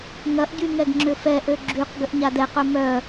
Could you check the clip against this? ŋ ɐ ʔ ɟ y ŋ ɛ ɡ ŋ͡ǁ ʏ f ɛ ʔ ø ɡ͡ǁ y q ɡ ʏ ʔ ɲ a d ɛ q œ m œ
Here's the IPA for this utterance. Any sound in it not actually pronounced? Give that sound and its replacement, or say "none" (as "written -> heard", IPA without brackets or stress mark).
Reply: none